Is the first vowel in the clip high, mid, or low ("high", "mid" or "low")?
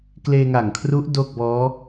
mid